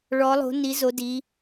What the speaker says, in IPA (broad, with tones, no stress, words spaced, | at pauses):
ɭɔ˩˧lˠo̤˩˧ ni˩˧zo˩˧ di˩˧